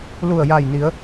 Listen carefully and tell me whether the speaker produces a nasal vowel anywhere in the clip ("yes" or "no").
no